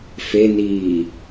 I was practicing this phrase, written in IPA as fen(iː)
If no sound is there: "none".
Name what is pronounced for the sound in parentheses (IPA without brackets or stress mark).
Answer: iː